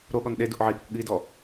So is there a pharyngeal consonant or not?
yes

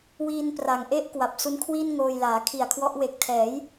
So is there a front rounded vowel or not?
no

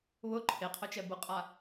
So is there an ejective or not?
yes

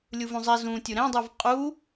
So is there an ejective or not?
yes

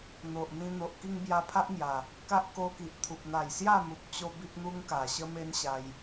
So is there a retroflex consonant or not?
no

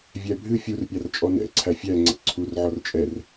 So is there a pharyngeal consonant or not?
yes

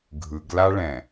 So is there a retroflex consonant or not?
yes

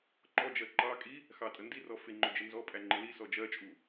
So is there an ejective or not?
yes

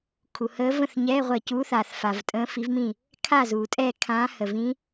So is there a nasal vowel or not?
yes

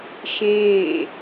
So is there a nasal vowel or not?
yes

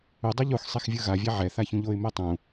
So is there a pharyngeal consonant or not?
yes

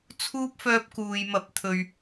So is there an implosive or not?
no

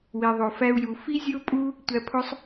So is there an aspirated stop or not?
yes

